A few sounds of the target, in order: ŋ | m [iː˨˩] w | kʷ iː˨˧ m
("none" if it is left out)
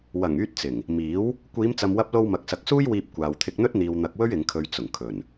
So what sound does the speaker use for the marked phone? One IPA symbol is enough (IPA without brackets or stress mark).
iː˨˥